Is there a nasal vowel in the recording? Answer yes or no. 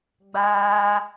no